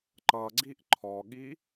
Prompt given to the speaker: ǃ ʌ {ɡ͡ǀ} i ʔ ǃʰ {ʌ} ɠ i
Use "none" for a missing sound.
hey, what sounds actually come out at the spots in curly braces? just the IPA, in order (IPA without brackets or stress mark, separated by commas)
ɡ͡ǀ, ɔ